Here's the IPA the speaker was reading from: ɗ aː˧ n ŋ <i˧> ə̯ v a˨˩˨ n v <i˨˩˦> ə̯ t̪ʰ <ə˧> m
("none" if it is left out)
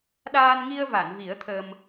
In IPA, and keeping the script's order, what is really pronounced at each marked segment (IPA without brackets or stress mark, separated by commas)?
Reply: i˧, i˨˩˦, ə˧